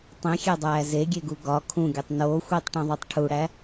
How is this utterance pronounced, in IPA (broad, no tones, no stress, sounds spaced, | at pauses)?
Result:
tˤ ĩ xʲ e dˤ æː z e ɡʲ e ɡ u ɡ ɒ kʰ ũ ɡʲ o tˤ n oː xʷ iː tˤ ʈ ĩ ðˤ o tˤ ʈʰ u ɽ æ